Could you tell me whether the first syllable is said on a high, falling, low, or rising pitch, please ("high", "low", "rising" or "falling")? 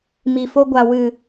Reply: low